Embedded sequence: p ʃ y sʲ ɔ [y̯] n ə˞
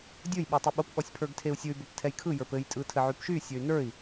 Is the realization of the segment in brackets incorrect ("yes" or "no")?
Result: no